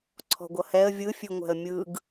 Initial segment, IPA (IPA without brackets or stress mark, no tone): ǀʰ